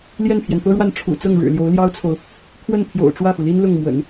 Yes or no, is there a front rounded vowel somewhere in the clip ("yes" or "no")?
no